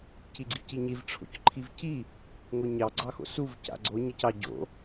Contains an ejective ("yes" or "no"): no